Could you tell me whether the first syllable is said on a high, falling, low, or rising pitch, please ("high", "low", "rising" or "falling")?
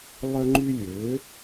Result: high